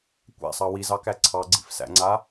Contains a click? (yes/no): yes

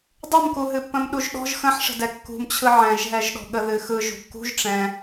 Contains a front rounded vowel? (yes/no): no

